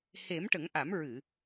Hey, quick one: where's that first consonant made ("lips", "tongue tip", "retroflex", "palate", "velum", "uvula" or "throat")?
throat